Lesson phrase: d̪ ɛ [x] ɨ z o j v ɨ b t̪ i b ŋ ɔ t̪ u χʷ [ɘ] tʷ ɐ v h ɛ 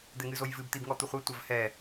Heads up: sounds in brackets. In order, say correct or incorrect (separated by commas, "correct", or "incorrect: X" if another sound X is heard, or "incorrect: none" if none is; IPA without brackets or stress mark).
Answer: incorrect: ŋ, correct